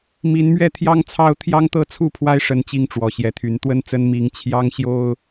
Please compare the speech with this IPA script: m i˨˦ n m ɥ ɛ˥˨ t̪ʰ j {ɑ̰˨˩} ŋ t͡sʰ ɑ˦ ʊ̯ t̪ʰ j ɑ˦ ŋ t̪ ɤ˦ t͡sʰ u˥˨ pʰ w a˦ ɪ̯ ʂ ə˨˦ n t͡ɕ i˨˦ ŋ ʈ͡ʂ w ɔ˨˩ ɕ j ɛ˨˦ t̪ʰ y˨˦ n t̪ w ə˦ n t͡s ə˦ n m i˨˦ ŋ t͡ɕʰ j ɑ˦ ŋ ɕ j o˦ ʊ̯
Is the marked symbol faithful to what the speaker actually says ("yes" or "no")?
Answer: no